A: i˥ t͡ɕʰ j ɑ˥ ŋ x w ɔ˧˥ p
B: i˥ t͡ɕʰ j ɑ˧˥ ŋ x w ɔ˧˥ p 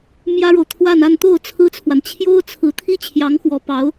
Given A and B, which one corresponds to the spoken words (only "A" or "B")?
B